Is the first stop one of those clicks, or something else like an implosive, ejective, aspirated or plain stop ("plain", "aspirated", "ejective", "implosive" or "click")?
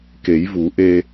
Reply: plain